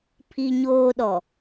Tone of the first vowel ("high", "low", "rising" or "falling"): high